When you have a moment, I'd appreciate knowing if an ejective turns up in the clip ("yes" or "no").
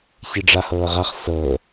no